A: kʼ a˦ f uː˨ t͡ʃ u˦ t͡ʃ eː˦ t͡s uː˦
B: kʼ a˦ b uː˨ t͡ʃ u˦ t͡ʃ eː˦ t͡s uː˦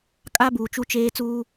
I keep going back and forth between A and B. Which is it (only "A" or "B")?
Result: B